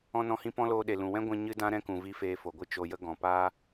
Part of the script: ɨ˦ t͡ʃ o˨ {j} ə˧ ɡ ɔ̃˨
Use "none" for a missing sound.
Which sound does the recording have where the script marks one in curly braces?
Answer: j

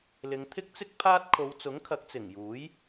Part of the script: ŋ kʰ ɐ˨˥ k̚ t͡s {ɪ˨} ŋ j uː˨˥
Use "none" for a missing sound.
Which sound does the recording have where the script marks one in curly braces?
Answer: ɪ˨˩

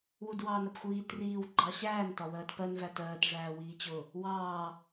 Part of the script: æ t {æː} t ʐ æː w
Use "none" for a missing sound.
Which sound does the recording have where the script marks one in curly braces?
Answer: ɜː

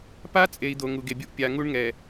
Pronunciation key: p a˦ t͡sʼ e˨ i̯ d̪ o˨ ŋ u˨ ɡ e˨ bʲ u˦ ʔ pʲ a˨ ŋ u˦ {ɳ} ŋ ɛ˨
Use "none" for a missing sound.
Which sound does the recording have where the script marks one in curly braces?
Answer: ɳ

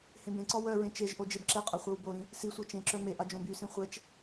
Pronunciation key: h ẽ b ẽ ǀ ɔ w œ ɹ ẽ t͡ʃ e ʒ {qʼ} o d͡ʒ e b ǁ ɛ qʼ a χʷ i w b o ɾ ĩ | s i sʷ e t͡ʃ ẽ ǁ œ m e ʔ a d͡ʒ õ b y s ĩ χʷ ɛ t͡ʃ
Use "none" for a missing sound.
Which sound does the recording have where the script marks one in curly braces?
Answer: ʔ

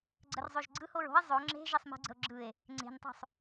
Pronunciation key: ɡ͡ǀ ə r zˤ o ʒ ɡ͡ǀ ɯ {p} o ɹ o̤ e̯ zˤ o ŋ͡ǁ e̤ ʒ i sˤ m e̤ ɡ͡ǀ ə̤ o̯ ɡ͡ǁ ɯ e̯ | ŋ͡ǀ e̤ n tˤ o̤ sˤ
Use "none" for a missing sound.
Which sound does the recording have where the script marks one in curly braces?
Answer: h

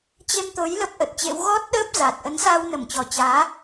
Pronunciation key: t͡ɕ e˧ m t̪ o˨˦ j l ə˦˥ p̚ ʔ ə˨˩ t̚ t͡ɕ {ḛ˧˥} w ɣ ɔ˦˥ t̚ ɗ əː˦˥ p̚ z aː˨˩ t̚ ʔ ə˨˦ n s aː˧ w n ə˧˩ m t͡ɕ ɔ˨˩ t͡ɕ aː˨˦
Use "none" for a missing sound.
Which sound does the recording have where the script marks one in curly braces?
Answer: ḛ˧˥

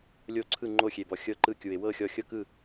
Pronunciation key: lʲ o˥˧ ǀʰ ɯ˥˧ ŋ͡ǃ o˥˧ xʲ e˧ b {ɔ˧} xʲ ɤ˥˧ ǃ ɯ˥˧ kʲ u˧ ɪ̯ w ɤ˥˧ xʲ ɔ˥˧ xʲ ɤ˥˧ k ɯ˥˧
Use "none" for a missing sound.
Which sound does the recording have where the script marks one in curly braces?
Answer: ɔ˧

